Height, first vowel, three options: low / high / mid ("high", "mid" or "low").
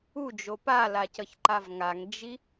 high